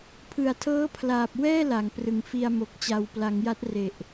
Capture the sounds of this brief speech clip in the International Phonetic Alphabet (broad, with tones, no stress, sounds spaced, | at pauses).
pʰ ɯ˨˩ a̯ tʰ ɤː˦˥ pʰ l aː˨˩ p̚ w ɛː˥˩ l a˩˦ ŋ p r ɯ˨˩ ŋ f i˧ a̯ m o˨˩ k̚ t͡ɕ a˨˩ w p l a˩˦ ŋ j a˦˥ t̚ r e˨˩ ʔ